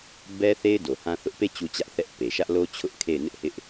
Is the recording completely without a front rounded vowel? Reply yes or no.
yes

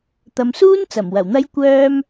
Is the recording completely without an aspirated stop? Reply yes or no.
yes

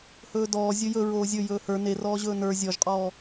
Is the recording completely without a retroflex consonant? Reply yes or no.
yes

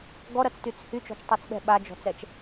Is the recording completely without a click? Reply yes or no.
yes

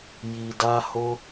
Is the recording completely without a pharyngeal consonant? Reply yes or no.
yes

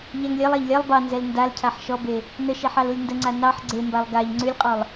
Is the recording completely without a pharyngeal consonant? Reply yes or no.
no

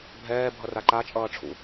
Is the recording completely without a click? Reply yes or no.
no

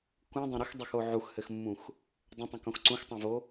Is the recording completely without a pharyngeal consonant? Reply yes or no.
no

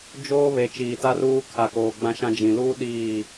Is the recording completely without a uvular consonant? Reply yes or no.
yes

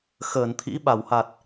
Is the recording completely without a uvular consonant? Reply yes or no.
yes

